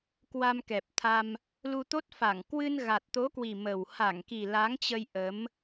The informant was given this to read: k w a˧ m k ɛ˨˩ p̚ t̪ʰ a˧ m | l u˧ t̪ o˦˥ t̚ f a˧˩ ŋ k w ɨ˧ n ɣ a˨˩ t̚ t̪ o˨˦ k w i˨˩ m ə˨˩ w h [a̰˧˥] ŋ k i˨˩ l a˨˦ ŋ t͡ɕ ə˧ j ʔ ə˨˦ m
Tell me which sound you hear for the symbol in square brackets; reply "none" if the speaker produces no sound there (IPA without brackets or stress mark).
a˧˩